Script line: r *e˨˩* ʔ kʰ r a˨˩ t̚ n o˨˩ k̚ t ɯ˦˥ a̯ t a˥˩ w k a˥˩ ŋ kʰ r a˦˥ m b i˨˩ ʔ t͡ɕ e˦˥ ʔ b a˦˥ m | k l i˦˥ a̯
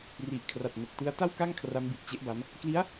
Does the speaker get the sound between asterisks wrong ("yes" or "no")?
yes